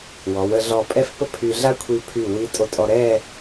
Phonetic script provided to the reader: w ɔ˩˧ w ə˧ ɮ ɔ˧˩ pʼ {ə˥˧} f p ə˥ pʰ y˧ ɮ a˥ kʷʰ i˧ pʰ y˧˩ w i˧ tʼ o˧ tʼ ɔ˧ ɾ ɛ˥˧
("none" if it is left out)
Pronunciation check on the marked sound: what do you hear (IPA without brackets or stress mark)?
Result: ɛ˥˧